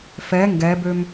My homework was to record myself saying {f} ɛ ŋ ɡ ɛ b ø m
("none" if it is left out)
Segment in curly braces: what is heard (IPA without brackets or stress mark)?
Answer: f